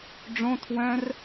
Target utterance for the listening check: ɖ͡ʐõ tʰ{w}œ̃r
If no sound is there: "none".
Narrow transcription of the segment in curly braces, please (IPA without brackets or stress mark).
w